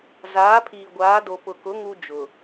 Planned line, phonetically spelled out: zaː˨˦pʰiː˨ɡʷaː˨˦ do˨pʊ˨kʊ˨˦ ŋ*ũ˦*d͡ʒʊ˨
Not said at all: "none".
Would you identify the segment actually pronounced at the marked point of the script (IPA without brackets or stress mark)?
u˦